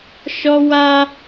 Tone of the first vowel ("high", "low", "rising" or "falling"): high